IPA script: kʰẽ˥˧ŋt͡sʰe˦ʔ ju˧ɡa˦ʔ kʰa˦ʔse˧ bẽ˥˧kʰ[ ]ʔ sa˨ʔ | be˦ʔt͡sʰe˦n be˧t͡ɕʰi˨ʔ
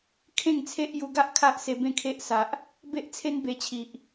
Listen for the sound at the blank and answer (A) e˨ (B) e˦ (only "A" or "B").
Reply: B